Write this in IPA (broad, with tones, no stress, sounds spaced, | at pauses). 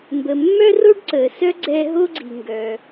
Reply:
m b ə˩ mː œ˥ r o˥ ɖ ǀ əː˩ s œ˥ ɡ͡ǀ ɛː˧ ɦ o˥ ɡ͡ǀ i˩ ŋ ɡ œ˩